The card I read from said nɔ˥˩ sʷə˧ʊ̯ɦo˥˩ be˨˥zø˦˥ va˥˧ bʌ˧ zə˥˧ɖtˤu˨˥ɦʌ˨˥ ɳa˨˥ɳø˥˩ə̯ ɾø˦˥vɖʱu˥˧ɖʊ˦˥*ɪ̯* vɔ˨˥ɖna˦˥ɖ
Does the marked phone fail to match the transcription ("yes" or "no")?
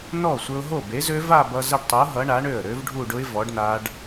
no